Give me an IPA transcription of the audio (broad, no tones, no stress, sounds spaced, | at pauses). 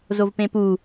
z o v p ẽ p u